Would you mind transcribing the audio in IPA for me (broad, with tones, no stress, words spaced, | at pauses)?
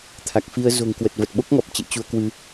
t̪ʰa˨˩k̚fi˧ə̯ zo̤˨˩ŋ kwə˨˩t̚və˨˩t̚ ɓo˦˥k̚ŋɔ˨˩p̚t͡ɕḛ˧˨ t͡ɕu˧ə̯kwɨ˧